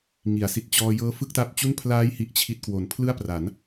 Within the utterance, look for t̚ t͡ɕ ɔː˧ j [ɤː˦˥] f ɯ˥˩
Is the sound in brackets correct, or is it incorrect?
correct